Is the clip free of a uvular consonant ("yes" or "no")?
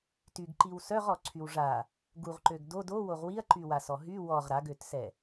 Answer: no